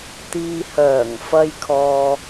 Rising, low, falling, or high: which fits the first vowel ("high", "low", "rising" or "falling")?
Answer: low